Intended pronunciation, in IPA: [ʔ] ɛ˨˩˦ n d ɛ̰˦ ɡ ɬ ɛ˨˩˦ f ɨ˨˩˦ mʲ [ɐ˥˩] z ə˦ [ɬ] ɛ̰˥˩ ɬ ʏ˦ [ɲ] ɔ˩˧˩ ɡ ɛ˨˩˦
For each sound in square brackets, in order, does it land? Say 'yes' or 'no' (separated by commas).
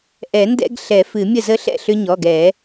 yes, no, yes, yes